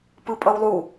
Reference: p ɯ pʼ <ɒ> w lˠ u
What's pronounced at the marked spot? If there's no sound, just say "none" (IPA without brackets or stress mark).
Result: ʌ